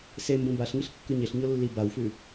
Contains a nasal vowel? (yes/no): yes